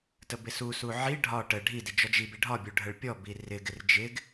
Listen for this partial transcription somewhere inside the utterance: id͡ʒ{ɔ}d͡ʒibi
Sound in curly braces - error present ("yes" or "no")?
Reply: no